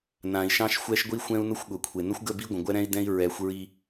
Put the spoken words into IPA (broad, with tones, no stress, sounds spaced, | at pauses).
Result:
n ã˨ i̯ ʃ ɑ̃˦ ʃ xʷ ɛ˦ ʃ ɡʷ i˦ xʷ ɛ̃˦ u̯ n ʊ˦ xʷ ɠ ʊ˨ kʷʰ e˨ n ə˦ xʷ ɡ ə˦˨ b i˦ ɡʷ ə̃˨ ɡʷ ɛ˦ ɾ ɛ̃˦ i̯ d ɛ̃˦ i̯ ɹ ɛ˨˦ xʷ ɹ i˦